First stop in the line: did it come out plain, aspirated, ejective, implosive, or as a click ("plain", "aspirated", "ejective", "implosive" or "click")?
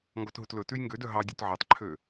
plain